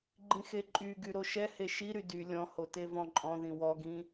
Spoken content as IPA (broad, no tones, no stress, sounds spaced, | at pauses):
ɡ͡ǃ ĩ x e ǃʼ y ɡ y ɾ o ʃ ɛ h e ʃ i ɾ y d y lʲ ɔ̃ h o t e v ɔ̃ ǃʼ ɔ̃ ð ĩ w ɔ ɡ ĩ